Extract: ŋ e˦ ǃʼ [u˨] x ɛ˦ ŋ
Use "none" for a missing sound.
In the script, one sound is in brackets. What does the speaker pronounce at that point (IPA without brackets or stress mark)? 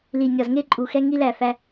u˨